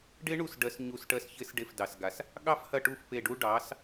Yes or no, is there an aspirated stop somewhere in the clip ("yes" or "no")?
no